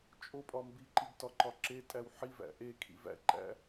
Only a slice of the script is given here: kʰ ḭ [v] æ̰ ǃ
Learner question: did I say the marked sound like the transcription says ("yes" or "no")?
yes